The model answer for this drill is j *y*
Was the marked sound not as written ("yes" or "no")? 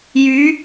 no